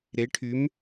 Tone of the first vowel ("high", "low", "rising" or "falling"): rising